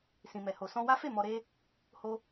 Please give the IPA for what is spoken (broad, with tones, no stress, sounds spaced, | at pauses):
s ĩ˨ m ɛ˨ h o˨ s ɔ̃˧ w a˦ f e˦˨ m ɔ˧ ɾ e˦ | h o˦